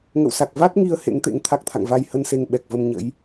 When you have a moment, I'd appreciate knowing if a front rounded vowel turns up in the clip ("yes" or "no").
no